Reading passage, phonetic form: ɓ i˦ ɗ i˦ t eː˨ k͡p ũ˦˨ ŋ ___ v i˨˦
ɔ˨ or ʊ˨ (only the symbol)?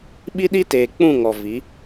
ɔ˨